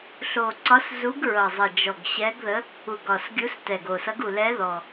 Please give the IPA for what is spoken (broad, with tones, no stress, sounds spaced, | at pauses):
ɬ o˨˩ ǀ ɒ˧˥ s z u˧˥ ɡ ɹ ʌ˨˩ zˤ ʌ˨˩ d͡ʒ ɔ˨˩ ɡ ɕ ɛ˧˥ ɡ ð ə˧˥ | u˨˩ ɡ ɒ˨˩ s ɡʲ u˧˥ s t ɛ˨˩ ɡ o˨˩ s ʌ˧˥ ɡ u˨˩ l ɛ˧˥ ð ɔ˨˩